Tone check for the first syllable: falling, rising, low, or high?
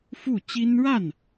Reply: falling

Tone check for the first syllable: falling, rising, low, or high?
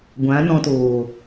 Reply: rising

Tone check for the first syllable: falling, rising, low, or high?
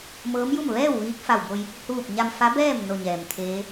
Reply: rising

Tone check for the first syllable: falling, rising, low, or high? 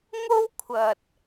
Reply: high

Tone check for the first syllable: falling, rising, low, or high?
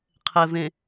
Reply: low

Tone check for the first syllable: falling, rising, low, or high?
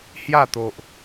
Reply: falling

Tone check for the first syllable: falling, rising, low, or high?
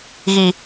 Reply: low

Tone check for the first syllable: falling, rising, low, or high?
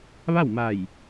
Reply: falling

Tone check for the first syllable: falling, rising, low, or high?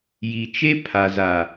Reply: low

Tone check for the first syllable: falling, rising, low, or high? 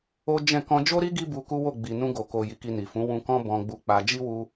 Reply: high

